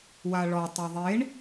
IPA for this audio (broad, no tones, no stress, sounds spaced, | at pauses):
w a ɭ ɔ tˤ e ðˤ e ɳ